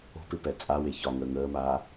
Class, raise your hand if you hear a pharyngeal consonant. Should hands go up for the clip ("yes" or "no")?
no